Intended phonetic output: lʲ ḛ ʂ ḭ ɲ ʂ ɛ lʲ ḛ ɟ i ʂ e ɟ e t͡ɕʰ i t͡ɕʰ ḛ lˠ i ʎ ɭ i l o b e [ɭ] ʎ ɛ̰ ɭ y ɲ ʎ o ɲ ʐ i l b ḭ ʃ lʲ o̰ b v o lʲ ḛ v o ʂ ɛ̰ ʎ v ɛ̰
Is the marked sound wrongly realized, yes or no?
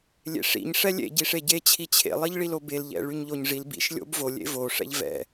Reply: yes